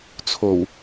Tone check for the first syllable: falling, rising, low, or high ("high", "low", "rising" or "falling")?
low